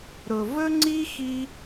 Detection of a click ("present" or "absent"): present